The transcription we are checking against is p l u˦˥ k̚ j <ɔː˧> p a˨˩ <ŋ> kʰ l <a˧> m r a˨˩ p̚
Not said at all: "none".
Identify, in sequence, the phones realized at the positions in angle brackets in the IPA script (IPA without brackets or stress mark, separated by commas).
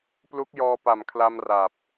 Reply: ɔː˧, m, a˧